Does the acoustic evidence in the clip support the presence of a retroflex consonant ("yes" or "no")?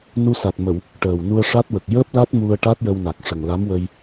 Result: yes